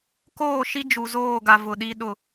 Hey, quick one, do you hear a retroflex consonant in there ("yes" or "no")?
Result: no